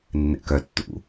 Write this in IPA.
nː ɛ̰ k œ tː ṵ

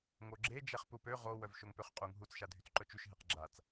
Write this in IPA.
ŋ o ɡ͡ǁ e d͡ʒ ɛ χ p u p ø ʁ o w œ v ʃ o ŋ p ø χ qʼ u ŋ ɦ u t͡s ʃ a dʱ y t͡s ǃ œ t͡ʃ y ʃ ɦ e q ɡ͡ǁ a t͡s

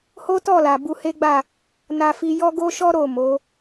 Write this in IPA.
h o˦ t ɔ˦˨ l a˨ b u˧ h e˦ ɡ͡b a˦˨ | n a˧ f i˧ j ɔ˦ ɡ o˦ ʃ ɔ˦ ɾ o˦˨ m o˨˦

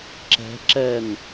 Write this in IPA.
ǁ ɛ̤ ǁ ɛ n

